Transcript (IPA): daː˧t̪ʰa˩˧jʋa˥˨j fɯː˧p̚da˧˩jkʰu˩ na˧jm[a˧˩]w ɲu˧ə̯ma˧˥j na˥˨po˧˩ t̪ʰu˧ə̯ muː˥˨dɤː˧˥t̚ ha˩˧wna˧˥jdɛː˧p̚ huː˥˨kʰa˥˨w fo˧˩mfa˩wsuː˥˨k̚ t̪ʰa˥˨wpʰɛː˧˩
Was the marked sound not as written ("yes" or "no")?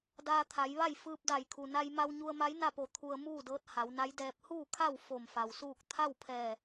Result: yes